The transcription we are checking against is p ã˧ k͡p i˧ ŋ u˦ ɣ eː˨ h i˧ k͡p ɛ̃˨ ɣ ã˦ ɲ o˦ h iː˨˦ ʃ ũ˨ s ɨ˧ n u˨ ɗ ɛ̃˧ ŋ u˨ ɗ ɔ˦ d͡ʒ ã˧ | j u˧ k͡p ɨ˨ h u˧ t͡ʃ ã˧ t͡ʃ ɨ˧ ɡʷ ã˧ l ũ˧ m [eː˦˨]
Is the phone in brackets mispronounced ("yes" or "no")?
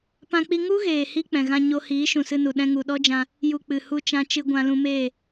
no